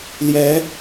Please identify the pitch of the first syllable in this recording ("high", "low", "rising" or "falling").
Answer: rising